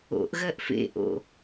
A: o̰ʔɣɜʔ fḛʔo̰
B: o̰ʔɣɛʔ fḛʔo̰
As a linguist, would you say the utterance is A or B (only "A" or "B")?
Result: A